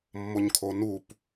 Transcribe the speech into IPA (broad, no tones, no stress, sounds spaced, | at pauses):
mː o ɲ kʰ o n u p